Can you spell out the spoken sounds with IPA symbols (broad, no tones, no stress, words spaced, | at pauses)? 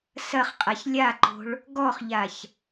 sɐχqʼaç lʲaǃo̤ɭ | ɡɔχʎaç